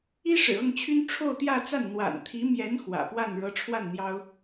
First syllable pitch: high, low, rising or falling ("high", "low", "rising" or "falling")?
high